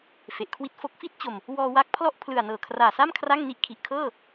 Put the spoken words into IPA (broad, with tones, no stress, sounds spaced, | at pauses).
f e˨˩ ʔ kʰ w i˥˩ t̚ f o˥˩ k̚ f i˥˩ t̚ t͡ɕ o˨˩ m | w ɔː˧ w a˦˥ k̚ pʰ l ɔ˥˩ ʔ pʰ l ɯ˨˩ a̯ n ɤː˨˩ kʰ r aː˨˩ s a˥˩ m kʰ r a˥˩ ŋ n i˥˩ ʔ kʰ i˨˩ ʔ kʰ ɤː˥˩